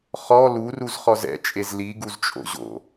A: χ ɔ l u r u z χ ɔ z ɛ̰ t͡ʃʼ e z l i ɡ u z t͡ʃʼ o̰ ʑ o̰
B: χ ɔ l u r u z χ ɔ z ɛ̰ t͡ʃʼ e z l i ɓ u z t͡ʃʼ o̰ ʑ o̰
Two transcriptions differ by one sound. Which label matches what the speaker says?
A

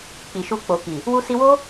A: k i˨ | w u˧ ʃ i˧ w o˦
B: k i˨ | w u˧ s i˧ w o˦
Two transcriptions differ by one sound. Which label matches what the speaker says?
B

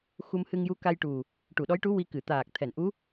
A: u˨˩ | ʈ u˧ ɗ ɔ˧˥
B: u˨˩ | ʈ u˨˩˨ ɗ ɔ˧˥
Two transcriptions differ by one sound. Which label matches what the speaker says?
B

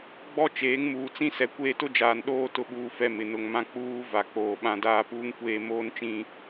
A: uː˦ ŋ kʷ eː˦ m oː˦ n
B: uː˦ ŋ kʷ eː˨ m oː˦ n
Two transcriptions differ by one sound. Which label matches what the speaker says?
A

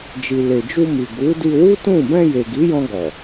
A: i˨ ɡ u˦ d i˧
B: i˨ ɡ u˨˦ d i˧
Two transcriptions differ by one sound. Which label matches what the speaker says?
B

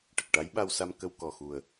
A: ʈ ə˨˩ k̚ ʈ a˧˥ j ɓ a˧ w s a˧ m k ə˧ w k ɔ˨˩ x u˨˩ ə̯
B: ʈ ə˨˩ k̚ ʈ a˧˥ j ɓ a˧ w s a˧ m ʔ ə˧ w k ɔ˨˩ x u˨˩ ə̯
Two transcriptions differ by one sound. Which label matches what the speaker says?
A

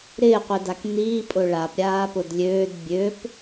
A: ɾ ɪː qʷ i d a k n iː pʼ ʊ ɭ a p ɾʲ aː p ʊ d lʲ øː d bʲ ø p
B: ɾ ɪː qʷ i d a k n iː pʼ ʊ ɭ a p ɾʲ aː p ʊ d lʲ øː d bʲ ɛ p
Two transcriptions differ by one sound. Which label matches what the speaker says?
A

